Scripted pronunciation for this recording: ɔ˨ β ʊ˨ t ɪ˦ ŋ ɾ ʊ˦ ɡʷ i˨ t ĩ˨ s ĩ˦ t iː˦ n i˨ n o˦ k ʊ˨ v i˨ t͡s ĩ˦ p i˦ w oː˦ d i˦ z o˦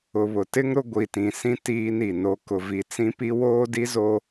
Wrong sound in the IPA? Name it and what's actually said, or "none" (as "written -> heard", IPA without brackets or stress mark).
ɔ˨ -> ʊ˨